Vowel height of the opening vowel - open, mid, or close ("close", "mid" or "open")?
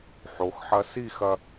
mid